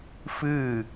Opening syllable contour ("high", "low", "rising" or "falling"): falling